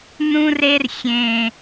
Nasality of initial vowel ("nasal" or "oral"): nasal